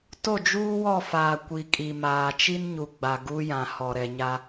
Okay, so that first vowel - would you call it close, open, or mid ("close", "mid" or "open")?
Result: mid